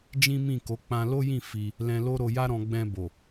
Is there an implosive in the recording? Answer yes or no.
no